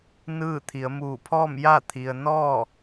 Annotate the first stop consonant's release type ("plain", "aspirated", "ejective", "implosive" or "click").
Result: aspirated